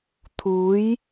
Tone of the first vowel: rising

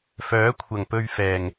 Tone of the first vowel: rising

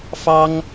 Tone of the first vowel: high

